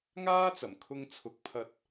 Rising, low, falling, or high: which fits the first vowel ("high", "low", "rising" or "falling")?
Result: high